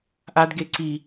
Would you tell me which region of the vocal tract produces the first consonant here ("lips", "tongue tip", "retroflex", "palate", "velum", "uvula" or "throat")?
throat